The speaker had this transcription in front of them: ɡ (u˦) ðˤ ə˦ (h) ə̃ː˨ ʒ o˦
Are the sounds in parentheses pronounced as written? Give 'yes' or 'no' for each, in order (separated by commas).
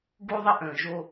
yes, no